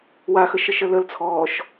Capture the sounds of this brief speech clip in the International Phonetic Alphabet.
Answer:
w a x ə ʃ ə ʃ ə l ə l t͡sʰ ɔː ʃ

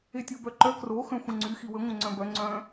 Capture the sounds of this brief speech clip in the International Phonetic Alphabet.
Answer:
e tʲ o b œ ǃ œ k r o x œ̃ xʷ ə̃ ŋ͡ǀ y x i w ə ŋʷ ə̃ ŋ͡ǀ œ̃ b œ ŋ͡ǀ œ̃

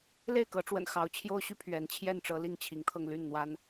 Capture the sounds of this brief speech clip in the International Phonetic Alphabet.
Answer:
l e˥˨ ɪ̯ k ɤ˨˦ ʈ͡ʂ w ə̰˨˩ n x ɑ˨˦ ʊ̯ t͡ɕʰ j o˦ ʊ̯ ɕ y˦ pʰ ɥ ɛ˨˦ n t͡ɕʰ j ɛ˥˨ n ʈ͡ʂ ɤ˦ l i˥˨ ŋ t͡ɕʰ i˨˦ ŋ t̪ʰ ɤ˧ ŋ l y˥˨ n n̪ w a˦ n

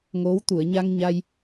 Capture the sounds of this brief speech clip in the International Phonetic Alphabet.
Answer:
ŋ o˧˥ w t̪ u˨˩˨ ə̯ ɲ a˧ ŋ ɲ a˧ j

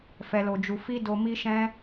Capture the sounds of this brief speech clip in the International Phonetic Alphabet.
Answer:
f ɛ˨ l o˨ d͡ʒ u˨ f i˧ d o˨ m i˧ ʃ ɛ̃˧

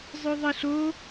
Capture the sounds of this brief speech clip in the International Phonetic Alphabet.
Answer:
zˤ ʉ ðˤ ɨ ɬ o

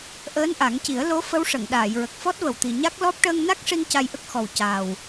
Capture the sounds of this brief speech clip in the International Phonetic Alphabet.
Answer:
ʔ əː˧˥ n ʔ a˨˩˦ ŋ c i˨˩˦ ə̯ l o˧˥ f ə˧˥ w ʂ ə˨˩˨ ŋ ɗ aː˨˩˨ j ɹ ə˨˩ k̚ f ɔ˦˥ t̚ v ə˨˩ w t̪ i˨˩ ɲ a˦˥ k̚ l ɔ˦˥ p̚ ʈ əː˧ ŋ n a˦˥ k̚ ʂ i˧ ŋ c a˧ j ʔ ə˦˥ k̚ x ɔ˨˩ w c aː˨˩ w

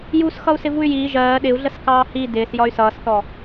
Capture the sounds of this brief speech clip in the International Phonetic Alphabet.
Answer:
j u s x ʌ u̯ s ɪ v u y̯ j iː ʒ ɜː ɗ ɪ u̯ ɮ ə s k ɑː h i d ɪː s j ɒ y̯ s ʌː s θ ɔ

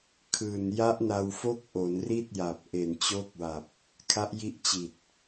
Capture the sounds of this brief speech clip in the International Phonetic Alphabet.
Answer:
kʰ ɯː˨˩ n j a˦˥ ʔ n a˧ w f o˥˩ k̚ ʔ o˩˦ n r i˥˩ t̚ j a˨˩ p̚ ʔ e˨˩ n t͡ɕ o˦˥ k̚ w a˨˩ p̚ | kʰ a˦˥ ʔ j i˦˥ ʔ t͡ɕ i˨˩ t̚

